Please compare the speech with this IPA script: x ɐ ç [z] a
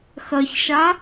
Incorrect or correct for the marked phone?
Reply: incorrect: ʃ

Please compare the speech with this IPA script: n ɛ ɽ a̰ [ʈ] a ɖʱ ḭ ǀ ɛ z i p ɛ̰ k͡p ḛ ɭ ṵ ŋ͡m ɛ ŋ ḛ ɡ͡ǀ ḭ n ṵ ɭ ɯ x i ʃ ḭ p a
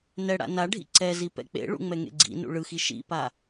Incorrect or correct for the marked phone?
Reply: incorrect: n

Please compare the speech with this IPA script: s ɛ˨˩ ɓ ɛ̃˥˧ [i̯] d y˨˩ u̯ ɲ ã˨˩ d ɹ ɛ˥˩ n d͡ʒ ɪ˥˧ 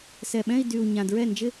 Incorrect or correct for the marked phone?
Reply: correct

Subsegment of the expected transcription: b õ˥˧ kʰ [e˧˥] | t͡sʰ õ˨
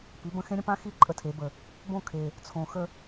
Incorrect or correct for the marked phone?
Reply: incorrect: e˨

